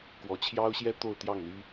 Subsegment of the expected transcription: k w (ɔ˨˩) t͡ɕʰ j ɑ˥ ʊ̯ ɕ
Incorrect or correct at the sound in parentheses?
incorrect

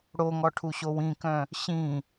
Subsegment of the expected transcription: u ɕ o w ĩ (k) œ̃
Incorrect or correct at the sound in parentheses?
correct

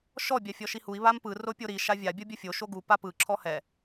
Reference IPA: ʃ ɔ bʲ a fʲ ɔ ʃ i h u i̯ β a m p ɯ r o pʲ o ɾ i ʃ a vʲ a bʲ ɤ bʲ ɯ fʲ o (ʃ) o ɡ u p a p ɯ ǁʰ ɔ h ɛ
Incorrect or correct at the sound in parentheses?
correct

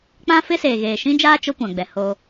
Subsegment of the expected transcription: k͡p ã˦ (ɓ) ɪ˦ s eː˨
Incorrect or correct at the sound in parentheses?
incorrect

